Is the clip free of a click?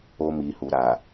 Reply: yes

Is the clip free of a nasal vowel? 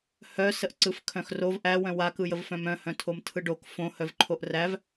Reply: no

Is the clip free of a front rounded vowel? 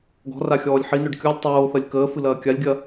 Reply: no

